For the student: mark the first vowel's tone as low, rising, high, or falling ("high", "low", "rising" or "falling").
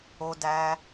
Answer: high